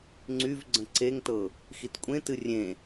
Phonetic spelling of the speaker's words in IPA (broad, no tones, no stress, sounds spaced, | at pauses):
ŋ͡ǀ y v ɡ͡ǀ ə̃ ǀ e ŋ t ɤ | x i t kʷʼ ẽ t ɨ rʲ ẽ